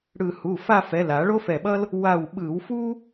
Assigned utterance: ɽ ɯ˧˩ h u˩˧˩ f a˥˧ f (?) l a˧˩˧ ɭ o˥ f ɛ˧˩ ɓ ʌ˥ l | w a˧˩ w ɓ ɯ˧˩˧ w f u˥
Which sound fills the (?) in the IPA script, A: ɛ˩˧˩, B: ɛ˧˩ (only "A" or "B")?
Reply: A